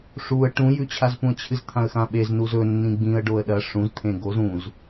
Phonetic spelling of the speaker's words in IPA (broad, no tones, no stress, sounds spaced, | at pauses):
ʂ u ə̯ ʈ ũ j ʉ t͡ɕʰ a z p ũ ə̯ t͡ɕʰ ɨ z t̪ʰ ã ə̯ x ã ɓ e z n u z ɵ nː ĩ ɡ͡b ĩ ə̯ ɖ o ə̯ ɗ ɐ ʂ ũ z t̪ʰ ẽ ɡ o z ũ z